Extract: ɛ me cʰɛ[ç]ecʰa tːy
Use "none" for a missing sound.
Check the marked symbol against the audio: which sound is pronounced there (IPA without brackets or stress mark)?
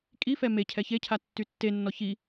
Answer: ç